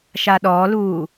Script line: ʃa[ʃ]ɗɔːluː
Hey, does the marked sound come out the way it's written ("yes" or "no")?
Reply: no